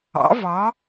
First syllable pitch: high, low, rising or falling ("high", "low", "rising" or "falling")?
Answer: rising